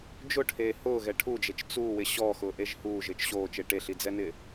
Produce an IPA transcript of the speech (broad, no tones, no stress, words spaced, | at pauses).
d͡ʒʊʈʰeː hʊːɣɛ ʈʰud͡ʒet͡ʃ t͡suːwɪ ɕɔxʊːʔeʒ huːʒɪːt͡ʃ ɕoːt͡ʃe ʈeɬid͡zɛnɪ